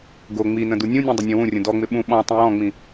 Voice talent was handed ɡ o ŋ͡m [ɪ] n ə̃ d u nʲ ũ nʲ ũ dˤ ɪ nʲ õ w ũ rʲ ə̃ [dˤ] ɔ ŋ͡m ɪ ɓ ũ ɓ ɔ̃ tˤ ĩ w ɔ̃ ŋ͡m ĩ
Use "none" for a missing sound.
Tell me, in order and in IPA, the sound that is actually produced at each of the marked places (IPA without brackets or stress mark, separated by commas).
i, d